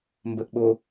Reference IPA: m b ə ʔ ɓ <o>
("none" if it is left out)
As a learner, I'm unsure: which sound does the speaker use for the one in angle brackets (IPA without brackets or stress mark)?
o